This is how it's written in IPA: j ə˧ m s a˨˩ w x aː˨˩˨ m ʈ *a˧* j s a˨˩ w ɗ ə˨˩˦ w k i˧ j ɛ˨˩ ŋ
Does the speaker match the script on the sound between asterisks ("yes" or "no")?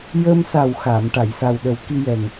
no